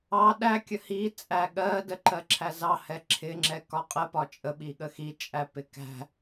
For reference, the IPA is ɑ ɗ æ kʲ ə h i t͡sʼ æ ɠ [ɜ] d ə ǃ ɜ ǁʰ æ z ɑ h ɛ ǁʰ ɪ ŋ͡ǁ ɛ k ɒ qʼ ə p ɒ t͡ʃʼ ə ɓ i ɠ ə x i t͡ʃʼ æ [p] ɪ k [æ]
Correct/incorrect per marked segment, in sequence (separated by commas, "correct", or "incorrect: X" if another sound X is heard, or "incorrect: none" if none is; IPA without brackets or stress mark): correct, correct, incorrect: æ̤